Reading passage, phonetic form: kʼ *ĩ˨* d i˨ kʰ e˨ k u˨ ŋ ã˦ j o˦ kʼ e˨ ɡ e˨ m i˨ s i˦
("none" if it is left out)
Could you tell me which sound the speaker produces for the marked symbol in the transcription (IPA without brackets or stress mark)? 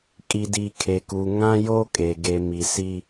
i˨